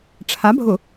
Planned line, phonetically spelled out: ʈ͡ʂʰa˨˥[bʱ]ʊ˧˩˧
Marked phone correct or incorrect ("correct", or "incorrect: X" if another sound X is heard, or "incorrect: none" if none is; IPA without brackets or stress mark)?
correct